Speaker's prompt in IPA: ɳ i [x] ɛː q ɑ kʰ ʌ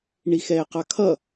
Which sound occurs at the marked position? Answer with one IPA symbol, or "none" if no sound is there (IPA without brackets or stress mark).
x